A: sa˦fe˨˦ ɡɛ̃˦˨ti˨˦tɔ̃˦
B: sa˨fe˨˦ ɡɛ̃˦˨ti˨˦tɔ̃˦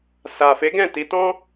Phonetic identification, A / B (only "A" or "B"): B